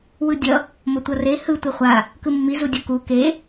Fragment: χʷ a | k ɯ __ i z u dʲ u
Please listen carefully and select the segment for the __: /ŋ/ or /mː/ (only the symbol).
mː